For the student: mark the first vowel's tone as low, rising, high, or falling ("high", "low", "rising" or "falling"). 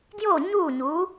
falling